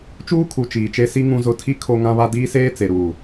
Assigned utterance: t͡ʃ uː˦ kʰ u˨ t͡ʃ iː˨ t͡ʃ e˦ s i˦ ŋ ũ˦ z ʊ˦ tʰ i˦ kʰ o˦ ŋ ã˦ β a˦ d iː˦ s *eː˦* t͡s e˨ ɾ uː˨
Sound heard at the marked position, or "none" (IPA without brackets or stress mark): eː˦